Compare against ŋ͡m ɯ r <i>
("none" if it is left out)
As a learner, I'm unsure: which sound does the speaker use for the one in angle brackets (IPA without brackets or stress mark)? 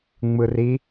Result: i